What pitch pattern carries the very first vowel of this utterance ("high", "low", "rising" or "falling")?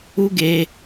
high